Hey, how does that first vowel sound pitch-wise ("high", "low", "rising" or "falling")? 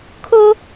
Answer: high